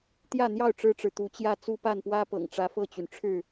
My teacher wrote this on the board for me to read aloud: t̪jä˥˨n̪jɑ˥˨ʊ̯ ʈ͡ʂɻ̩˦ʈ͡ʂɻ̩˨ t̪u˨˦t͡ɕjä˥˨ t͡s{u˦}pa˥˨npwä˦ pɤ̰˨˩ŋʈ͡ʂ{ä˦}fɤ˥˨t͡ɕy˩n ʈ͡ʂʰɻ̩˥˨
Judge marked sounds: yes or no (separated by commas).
yes, no